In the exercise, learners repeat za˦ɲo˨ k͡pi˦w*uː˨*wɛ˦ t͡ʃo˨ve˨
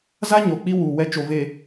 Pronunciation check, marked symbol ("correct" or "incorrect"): correct